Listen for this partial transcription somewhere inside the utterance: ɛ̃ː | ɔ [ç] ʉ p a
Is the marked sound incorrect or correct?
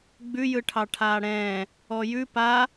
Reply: incorrect